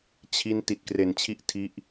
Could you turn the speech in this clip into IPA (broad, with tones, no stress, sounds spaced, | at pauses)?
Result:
t͡ɕʰ i˦˥ n t i˨˩ t̚ k r e˨˩ n t͡ɕʰ i˦˥ ʔ tʰ i˦˥ ʔ